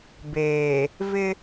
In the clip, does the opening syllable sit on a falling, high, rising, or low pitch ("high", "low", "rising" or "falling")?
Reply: low